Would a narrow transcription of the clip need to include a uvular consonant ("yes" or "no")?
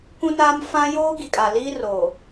no